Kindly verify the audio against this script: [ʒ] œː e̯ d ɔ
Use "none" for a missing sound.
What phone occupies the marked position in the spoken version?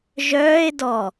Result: ʒ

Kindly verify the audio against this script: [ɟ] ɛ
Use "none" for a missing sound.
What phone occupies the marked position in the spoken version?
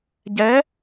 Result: ɟ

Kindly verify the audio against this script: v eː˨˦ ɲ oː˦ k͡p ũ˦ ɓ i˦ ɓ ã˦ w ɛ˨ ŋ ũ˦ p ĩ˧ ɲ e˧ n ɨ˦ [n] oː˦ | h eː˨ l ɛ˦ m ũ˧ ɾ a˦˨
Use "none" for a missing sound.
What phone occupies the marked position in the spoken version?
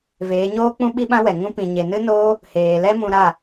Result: n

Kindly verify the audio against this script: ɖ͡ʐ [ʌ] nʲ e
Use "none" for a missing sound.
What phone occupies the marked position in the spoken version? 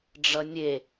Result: ʌ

